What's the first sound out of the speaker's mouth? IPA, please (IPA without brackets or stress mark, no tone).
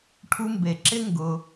ʈʰ